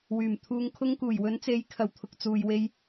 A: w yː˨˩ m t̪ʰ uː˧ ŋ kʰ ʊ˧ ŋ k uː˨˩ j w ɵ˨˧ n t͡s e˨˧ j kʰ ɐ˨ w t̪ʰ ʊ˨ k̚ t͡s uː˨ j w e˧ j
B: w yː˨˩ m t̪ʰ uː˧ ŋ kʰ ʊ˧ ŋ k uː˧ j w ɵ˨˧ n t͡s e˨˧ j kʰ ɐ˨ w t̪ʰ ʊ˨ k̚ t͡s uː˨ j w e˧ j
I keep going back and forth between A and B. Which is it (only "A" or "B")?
A